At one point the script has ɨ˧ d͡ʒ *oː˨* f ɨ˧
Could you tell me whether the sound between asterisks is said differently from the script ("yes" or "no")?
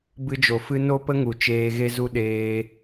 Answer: yes